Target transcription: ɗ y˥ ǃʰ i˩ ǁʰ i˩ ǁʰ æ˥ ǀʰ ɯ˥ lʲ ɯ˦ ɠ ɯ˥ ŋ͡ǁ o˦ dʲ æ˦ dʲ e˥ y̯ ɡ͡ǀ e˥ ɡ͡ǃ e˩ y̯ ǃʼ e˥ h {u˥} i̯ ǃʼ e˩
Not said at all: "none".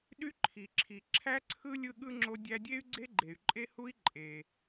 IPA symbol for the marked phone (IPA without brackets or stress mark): u˥